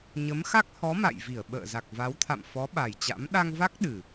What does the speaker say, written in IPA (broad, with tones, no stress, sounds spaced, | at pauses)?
ɲ ə˨˦ m x a˦˥ k̚ h ɔ˨˦ m a̰˧˨ j v i˧˩ ə̯ ɓ ə̰ː˧˨ z a˨˩ k̚ v a˨˦ w t̪ʰ a̰˧˨ m f ɔ˨˦ ɓ a˨˩ j t͡ɕ a̰˧˥ m ɗ a˧ ŋ v a˦˥ k̚ ɗ ɨ˨˩